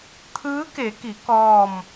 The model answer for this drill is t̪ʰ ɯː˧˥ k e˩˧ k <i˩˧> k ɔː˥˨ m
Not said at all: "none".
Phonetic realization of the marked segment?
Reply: i˩˧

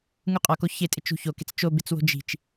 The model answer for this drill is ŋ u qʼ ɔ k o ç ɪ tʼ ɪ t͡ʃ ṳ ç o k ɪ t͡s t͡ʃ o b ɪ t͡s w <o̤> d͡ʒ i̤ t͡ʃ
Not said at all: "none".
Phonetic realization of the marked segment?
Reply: o̤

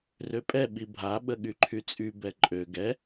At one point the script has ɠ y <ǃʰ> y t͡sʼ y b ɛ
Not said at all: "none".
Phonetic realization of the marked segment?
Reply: ǃʰ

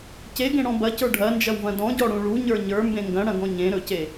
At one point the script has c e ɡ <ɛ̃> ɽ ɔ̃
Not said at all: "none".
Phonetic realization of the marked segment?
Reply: ẽ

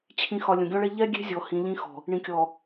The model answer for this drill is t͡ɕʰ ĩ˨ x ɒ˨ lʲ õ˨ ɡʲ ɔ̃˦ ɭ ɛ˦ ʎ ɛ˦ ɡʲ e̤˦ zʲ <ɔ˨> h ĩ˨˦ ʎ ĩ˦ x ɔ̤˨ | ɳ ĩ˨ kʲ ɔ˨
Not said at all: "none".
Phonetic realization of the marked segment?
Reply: ɔ˨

